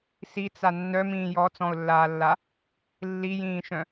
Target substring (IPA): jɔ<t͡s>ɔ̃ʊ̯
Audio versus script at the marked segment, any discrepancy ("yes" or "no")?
no